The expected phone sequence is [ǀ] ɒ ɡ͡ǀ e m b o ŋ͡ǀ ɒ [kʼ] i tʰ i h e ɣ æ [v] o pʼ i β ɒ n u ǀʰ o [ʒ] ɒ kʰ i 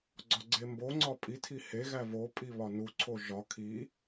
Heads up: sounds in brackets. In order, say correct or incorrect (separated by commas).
incorrect, incorrect, correct, correct